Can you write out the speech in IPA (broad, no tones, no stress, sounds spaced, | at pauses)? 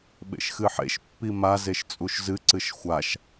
ɓ ḛ ʃ x ɨ ħ ḛ ʃ pː i m a z e ʃ t͡sʼ u ʃ z ɨ ǀ ɨ ʃ xʷ a ʃ